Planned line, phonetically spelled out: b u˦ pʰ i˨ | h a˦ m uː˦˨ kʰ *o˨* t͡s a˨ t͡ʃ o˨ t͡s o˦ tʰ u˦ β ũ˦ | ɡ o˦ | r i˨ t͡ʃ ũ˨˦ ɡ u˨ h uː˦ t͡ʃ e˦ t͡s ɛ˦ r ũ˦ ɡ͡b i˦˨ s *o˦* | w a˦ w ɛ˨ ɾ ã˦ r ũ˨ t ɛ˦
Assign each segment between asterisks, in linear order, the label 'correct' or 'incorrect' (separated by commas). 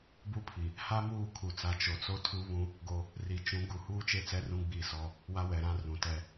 incorrect, incorrect